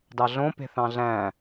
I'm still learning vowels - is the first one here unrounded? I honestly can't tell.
yes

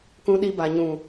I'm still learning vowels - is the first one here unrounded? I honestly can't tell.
no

